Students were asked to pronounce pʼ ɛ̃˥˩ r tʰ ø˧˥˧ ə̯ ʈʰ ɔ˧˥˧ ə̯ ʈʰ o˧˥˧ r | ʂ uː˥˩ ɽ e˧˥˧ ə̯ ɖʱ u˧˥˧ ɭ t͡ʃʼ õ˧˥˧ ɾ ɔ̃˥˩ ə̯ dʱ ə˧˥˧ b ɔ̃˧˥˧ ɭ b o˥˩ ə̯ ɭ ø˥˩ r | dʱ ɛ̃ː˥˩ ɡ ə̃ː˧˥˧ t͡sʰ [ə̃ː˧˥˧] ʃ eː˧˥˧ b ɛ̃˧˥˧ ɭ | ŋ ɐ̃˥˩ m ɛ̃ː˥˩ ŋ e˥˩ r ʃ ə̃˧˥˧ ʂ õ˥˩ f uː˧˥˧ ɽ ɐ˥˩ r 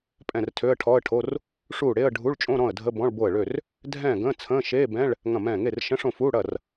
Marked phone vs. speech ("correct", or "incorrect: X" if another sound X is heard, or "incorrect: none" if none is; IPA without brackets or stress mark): correct